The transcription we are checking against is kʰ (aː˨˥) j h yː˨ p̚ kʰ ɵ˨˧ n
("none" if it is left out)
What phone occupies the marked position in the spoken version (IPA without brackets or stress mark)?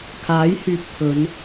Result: aː˨˥